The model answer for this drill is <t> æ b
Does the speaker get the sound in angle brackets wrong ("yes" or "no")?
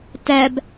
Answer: no